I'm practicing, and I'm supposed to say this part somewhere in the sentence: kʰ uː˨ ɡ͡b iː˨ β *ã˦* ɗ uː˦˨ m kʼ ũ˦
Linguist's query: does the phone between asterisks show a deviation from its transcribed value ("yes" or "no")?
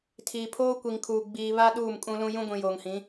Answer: yes